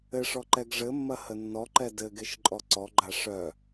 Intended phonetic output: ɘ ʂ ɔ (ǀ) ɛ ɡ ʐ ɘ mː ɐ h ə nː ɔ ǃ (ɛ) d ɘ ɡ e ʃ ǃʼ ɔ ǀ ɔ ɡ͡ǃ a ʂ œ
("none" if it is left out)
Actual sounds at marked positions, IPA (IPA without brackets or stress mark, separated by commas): ǃ, ɛ